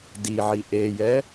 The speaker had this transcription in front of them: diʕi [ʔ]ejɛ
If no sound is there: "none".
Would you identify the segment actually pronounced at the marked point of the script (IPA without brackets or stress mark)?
ʔ